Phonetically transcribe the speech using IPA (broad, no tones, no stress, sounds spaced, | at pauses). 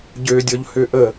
ɟ ø dʲ ɔ ʎ h ø ʔ ə